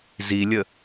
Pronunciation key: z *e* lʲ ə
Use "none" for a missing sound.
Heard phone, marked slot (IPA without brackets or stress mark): i